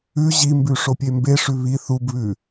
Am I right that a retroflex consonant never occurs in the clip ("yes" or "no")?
no